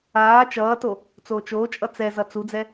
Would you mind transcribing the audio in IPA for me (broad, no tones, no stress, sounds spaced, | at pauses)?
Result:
aː t͡ʃ ʌː t o | t͡s oː t͡ʃ oː t͡ʃʼ ʌ t͡s ɛ z ʌ t͡s u d͡z ɛ